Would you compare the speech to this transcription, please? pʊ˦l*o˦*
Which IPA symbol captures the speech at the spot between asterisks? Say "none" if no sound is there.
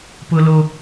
o˦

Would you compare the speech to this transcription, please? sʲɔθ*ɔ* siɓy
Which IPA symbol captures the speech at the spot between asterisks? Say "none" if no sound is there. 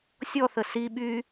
ə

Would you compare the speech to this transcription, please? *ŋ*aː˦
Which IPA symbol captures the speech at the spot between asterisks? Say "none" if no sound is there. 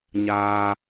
ɲ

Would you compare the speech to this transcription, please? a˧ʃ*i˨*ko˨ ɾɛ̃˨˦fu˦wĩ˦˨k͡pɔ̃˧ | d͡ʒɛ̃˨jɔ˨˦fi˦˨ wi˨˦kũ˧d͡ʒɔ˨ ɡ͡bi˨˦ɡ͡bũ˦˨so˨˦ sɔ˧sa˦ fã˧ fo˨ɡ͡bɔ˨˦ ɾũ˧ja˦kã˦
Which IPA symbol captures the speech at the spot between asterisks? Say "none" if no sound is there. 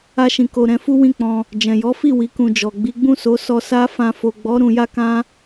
ĩ˨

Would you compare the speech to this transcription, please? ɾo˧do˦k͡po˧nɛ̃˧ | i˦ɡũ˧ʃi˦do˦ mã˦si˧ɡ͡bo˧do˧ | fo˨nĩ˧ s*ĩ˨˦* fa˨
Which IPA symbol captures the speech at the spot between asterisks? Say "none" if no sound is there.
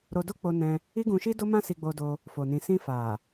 ĩ˧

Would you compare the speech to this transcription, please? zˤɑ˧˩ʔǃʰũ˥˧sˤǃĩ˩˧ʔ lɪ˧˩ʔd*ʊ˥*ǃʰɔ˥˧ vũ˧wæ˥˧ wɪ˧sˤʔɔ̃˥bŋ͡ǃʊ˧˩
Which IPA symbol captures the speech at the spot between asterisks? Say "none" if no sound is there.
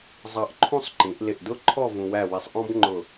ʊ˥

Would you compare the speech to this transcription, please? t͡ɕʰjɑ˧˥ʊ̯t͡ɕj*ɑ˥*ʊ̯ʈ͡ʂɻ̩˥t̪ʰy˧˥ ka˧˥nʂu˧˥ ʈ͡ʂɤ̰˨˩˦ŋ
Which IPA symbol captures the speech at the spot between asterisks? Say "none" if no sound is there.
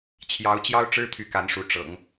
ɑ˥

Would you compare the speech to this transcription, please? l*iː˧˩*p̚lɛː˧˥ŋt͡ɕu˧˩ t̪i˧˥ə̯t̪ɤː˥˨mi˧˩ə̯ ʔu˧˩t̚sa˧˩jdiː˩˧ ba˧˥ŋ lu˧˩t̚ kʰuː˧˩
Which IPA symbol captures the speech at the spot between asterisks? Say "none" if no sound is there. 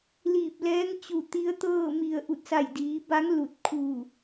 iː˧˩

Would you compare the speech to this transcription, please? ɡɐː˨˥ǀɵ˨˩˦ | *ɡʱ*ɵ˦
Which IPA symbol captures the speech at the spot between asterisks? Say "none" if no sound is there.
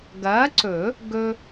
ɡ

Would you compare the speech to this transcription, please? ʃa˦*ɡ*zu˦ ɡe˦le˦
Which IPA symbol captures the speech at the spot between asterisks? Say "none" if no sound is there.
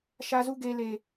none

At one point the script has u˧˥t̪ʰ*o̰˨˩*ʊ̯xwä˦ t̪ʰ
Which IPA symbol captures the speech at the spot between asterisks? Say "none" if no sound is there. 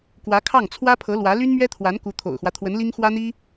o̰˨˩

